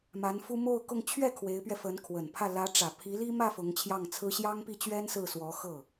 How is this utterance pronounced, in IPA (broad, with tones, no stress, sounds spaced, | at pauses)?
m a˧˥ n f u˥ m o˥˧ ʊ̯ k ʊ˥˧ ŋ t͡ɕʰ ɥ ɛ˥˩ kʰ w e˧˥ ɪ̯ p ɥ ɛ˧ f ə˧˥ n kʰ w ə˨˩ n pʰ ä˥˩ l ä˧˥ ʈ͡ʂ ä˨˩ pʰ i˧˥ l i˥ m ä˥˩ f ʊ˧˥ ŋ t͡ɕʰ j ɑ˥˩ ŋ t͡sʰ ɹ̩˥ ɕ j ɑ˥ ŋ p i˥˩ t͡ɕ ɥ ɛ˥ n s ɹ̩˥˩ s w ɔ˧˥ x ɤ˥˩